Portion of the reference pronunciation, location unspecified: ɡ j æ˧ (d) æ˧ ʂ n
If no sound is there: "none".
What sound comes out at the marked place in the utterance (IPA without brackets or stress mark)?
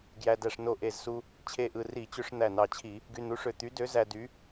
d